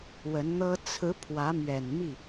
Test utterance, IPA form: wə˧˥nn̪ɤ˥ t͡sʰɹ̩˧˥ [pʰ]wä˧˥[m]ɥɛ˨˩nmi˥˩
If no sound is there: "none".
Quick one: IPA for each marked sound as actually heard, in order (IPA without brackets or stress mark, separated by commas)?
pʰ, m